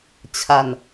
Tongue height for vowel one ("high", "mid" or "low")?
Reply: low